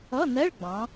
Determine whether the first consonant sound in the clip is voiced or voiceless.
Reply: voiced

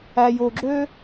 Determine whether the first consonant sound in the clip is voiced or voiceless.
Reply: voiced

